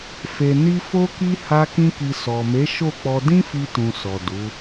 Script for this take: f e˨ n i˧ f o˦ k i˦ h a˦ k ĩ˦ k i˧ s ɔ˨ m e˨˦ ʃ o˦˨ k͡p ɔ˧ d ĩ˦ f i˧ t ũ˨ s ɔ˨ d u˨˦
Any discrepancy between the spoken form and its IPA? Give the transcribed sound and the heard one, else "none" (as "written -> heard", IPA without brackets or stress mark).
none